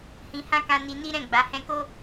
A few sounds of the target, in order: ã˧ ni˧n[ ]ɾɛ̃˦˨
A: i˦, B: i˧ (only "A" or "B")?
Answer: A